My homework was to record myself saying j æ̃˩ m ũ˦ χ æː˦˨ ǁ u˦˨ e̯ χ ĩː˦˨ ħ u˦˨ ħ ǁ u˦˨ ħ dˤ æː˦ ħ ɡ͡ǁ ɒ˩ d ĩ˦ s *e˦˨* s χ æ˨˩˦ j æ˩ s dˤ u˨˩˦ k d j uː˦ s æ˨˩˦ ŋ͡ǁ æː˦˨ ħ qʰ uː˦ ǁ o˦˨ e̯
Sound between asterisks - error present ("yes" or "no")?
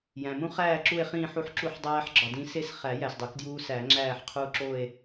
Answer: no